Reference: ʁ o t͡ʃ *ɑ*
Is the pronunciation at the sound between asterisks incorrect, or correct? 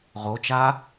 incorrect: a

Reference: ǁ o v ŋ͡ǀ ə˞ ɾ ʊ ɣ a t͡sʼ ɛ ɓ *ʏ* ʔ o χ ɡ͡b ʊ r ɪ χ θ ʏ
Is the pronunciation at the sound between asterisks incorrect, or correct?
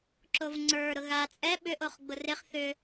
correct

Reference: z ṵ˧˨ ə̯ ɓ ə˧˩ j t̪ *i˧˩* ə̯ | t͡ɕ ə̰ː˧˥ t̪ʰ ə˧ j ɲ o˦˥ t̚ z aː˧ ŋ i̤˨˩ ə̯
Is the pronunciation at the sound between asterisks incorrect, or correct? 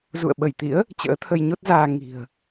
incorrect: ḭ˧˥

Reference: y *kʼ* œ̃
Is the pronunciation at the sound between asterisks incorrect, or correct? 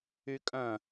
correct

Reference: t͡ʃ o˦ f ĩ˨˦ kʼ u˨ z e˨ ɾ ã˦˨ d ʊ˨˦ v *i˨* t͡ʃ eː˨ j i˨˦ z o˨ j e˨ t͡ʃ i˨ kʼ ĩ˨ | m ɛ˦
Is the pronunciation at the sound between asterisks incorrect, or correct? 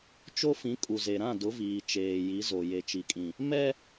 incorrect: iː˨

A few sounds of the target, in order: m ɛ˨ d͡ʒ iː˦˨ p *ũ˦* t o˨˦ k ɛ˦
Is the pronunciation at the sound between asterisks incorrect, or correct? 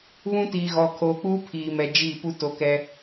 incorrect: u˦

